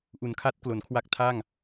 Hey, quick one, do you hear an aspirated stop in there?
yes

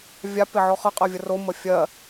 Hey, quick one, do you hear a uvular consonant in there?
yes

